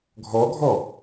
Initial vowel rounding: rounded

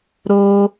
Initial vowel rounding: rounded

